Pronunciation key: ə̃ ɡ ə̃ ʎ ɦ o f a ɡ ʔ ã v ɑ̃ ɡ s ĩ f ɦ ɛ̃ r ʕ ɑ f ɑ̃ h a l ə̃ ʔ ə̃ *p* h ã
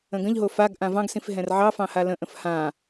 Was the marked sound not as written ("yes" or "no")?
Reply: yes